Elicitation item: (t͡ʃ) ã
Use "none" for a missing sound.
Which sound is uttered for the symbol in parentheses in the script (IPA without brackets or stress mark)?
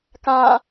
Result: k